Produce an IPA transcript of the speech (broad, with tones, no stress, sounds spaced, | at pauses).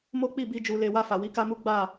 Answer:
m o˦ k͡p i˦˨ b i˧ d͡ʒ u˨ l e˨ w a˧ f a˨ w i˨˦ k a˦ m u˦ ɡ͡b a˦˨